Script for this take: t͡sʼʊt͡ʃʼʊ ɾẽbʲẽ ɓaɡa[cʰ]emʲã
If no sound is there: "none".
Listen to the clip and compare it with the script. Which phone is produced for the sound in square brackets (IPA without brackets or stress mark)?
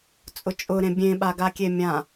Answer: kʲ